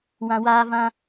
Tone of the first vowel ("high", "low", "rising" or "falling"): low